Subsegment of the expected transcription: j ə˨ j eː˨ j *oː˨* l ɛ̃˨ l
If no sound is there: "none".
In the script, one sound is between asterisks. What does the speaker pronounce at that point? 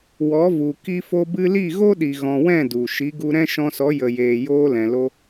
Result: oː˧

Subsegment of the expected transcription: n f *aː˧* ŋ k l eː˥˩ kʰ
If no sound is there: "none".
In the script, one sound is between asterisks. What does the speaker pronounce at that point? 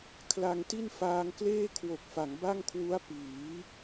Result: aː˧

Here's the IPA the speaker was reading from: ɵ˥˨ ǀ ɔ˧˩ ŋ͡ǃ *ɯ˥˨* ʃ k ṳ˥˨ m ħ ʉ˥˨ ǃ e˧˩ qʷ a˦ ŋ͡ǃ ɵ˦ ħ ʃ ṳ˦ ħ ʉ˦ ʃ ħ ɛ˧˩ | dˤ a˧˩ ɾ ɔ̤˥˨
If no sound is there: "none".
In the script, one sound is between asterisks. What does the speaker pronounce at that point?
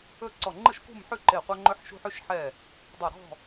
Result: ɯ˥˨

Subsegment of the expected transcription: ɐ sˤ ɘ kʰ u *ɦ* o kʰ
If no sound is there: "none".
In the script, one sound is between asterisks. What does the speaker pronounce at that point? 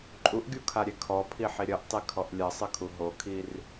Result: ɦ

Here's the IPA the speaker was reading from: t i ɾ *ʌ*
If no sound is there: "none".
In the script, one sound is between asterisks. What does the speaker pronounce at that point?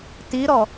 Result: ɔ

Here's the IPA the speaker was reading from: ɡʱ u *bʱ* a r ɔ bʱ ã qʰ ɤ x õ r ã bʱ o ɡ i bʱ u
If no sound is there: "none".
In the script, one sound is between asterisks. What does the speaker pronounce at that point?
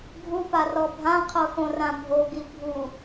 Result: p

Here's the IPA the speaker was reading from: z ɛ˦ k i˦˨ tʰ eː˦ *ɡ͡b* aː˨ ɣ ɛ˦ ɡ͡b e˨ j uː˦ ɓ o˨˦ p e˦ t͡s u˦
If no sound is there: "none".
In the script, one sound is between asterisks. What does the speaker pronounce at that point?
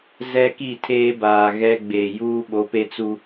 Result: b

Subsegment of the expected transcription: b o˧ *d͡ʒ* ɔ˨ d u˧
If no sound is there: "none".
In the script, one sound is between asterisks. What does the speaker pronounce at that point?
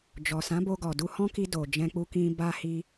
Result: ɡ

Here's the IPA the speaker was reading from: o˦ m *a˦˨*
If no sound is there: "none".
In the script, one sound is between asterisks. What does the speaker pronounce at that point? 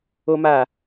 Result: a˦˨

